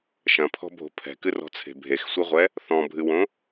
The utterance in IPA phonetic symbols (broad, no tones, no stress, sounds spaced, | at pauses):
ʃ ɐ̃ pʰ ɔ̤ bʱ o̤ pʰ ɛ̤ k ɨ r ɔ̤ t͡sʰ e̤ bʱ e x sʷ ɨ ʁʷ ɛ | θ ɔ̃ bʱ ɨ w õ